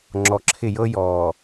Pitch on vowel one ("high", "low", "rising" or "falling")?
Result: low